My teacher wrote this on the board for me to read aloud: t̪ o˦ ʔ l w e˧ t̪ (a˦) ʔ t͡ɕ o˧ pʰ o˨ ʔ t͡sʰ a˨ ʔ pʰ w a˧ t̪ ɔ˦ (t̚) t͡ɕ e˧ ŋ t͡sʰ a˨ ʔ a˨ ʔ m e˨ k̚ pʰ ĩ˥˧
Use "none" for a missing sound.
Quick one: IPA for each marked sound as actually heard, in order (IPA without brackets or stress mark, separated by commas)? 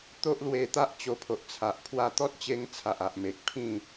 a˦, t̚